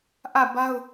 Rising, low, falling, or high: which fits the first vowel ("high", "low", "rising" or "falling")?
falling